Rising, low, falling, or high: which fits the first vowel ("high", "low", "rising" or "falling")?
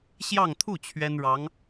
falling